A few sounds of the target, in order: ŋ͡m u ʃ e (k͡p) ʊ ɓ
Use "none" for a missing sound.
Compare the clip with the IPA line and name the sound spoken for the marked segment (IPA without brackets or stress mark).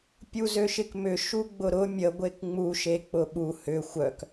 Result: k͡p